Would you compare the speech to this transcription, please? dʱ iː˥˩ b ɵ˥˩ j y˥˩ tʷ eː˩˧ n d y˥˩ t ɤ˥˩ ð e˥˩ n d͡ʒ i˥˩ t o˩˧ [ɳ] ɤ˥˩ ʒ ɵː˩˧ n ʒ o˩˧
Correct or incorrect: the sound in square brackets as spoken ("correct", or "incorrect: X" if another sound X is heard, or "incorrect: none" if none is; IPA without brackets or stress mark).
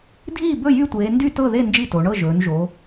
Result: correct